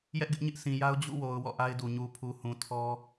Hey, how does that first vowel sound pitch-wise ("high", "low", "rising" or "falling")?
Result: high